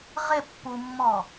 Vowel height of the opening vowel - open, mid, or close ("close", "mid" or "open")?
mid